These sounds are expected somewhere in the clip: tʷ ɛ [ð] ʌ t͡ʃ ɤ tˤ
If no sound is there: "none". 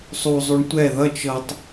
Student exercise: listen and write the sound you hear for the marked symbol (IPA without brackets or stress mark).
ð